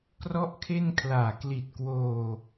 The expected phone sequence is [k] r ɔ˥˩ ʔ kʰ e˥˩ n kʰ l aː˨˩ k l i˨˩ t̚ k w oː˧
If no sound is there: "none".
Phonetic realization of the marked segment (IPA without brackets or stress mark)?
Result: k